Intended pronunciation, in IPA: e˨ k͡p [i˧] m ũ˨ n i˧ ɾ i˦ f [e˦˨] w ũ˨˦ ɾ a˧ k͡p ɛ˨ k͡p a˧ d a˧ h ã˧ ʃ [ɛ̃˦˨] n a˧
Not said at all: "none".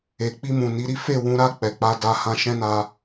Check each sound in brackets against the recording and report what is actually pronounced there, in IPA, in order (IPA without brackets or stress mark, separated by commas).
i˧, e˦˨, ɛ̃˦